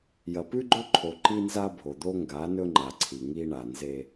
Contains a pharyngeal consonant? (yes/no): no